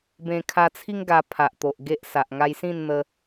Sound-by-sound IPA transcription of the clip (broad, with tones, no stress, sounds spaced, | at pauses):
b ẽ˧ kʰ a˧ t͡sʰ i˦ ŋ ɡ a˧ pʰ a˨ ʔ t̪ o˨ ʔ ɡ e˦ ʔ s a˨ ʔ ŋ a˧ j s ĩ˥˧ n n̪ ə˧